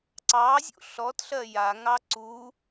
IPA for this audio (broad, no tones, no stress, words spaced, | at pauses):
ǀɑzʲṵ ɬɔtɬɜ jaŋɑ ǀu